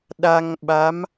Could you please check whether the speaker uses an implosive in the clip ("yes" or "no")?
yes